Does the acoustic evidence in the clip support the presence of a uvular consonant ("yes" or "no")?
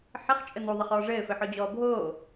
yes